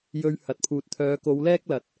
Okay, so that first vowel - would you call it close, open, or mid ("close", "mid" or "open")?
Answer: mid